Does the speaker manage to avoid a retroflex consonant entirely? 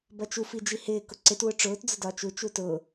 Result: no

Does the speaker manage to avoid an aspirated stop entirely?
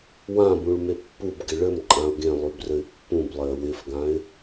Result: yes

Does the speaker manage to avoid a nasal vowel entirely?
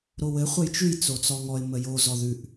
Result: yes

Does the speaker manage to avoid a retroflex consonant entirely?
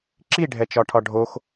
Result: no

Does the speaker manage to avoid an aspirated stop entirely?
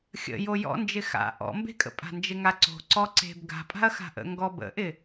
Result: yes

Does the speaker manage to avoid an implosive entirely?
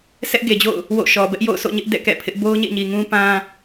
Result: yes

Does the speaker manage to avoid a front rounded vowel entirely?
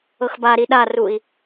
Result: yes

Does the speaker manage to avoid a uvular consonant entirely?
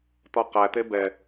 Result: no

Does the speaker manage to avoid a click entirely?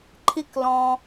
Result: no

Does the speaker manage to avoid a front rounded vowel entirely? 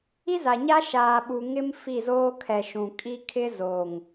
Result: yes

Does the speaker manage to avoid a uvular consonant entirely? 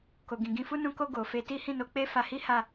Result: yes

